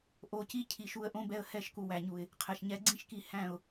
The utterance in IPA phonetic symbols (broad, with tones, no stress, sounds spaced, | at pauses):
ʔ o˧ c i˦ cʰ i˧ ʃ u˧ ə̯ ʔ õ˦ b ɛ˧ ə̯ h ɛ˦˨ ʃ k u˨ w æ˨ ɲ u˨ ɪ̯ | qʰ ɛ˨ ʃ ɲ ɛ˧ ɡ͡ǀ ĩ˦ ʃ k i˧ h æ̃˦˨ ʊ̯